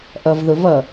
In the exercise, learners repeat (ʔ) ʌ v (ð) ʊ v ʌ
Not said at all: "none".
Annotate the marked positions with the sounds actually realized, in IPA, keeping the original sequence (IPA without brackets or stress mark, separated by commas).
ʔ, ð